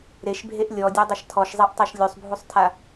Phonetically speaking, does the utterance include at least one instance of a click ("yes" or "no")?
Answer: no